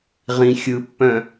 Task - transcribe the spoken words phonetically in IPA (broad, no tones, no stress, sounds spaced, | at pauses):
ʁ ĩ xʲ ɯ pː œ̃